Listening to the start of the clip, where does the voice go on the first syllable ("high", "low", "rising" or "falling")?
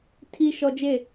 high